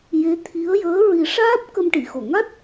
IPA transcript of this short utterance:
j e˧˥ t̪ʰ i˧˥ ə̯ j əː˧˥ ɹ i˨˩˦ ʂ aː˦˥ p̚ k ə˧ m ʈ i˨˩˨ x o˨˩˨ ŋ a˦˥ t̚

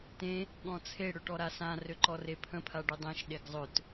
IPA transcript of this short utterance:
t ẽ | ɠ ɔ̃ t͡sʰ e ɽ ø ʈ ɔ ɾ a s ã r ø ǃ ɔ r e pʰ ə̃ pʰ a ɖ ɵ dˤ ẽ ʃ ɗ e ɡ zˤ ɵ t

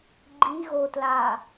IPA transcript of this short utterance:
ɡ͡ǃ i ɣ o t l a

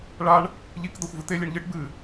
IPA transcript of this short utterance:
ɭ a ɳ | ʎ i k d̪ ɐ xʷ v ɨ t̪ e lʲ e ɳ ʎ ɨ ʈ b ɨ

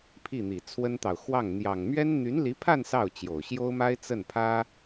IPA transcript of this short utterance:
pʰ i˥˩ n̪ i˨˩ t͡sʰ w ə˥ n t̪ ɑ˨ ʊ̯ x w ɑ˥˩ ŋ n̪ j ɑ˨˩ ŋ m ɥ ɛ˥ n n̪ y˧˥ n l i˧˥ pʰ a˥˧ n s ɑ˥˩ ʊ̯ t͡ɕ j o˨˩ ʊ̯ ɕ j o˥ ʊ̯ m a˥ ɪ̯ t͡s ə˥˩ n pʰ ä˥

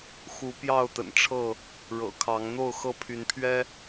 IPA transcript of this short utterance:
x u˨˦ p j ɑ˥˨ ʊ̯ t̪ ə̰˨˩ n ʈ͡ʂʰ ɤ˥˨ | ɻ ɤ̰˨˩ kʰ ɑ˨˦ ŋ n̪ o˥˨ ʊ̯ x ɤ˥˨ pʰ y˨˦ n pʰ ɥ ɛ˦

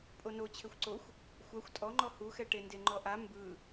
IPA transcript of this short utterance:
pʼ o n o t͡ɕʰ e xʷ ǀ o xʷ | xʷ a xʷ tʼ ɔ ŋ͡ǃ ɔ h u x ɛ ʈ e n d e ŋ͡ǃ ɔ ʔ a m b ɯ

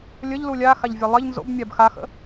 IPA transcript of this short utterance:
lʲ ə ʎ l u lʲ a x a ʎ vʲ a lˠ ɪ ʎ n z o̰ b mʲ a b x a x ə̰

